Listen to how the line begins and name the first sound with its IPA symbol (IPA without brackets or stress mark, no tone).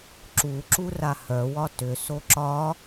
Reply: ǁ